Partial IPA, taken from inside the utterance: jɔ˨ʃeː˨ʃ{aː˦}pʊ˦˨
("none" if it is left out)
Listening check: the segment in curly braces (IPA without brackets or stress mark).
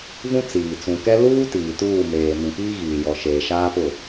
aː˦